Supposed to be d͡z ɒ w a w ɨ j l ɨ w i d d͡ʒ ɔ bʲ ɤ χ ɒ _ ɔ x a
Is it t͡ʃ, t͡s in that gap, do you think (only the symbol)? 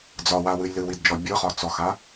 t͡s